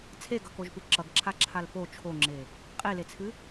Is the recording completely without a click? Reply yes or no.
no